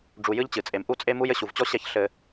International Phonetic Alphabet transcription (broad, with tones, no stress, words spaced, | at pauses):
ɖ͡ʐu˨jɨ˦ʎt͡ɕɨ˨t͡sʼe˨m ʔu˦t͡sʼe˦mu˦j ɘ˨ɕu˨vt͡ɕɔ˦ɕɛ˦˨ç ɬɘ˦